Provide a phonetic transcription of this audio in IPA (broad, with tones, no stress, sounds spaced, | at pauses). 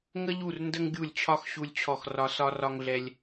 ŋ ə˦ ʎ u˦˨ r n d ə˦ ŋ ɡʲ u˦˨ lʲ t͡ɕʰ ɒ˦ x ɕ u˦ lʲ t͡ɕʰ ɔ˦˨ x r ɒ˦ s ɒ˦ r ɒ˦ ŋ ɮ ɛ˦ lʲ